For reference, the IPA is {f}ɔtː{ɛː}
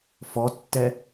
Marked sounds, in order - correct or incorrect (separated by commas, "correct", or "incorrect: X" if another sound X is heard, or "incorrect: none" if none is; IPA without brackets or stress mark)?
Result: correct, incorrect: ɛ